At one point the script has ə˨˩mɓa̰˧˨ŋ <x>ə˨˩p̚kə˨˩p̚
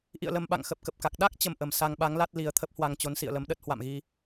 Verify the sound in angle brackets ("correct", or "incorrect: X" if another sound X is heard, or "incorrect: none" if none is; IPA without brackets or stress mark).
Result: correct